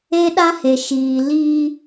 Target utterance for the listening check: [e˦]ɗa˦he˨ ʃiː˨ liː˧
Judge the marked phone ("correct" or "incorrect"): correct